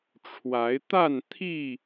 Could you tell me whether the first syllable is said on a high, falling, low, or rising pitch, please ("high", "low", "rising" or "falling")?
rising